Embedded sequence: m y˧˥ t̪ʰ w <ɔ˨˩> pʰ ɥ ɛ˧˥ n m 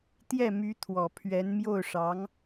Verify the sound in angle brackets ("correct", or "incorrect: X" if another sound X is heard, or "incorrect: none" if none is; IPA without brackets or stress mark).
correct